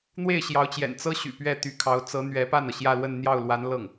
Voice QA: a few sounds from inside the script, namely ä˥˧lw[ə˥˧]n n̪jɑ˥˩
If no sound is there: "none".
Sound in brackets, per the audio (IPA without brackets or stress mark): ə˥˧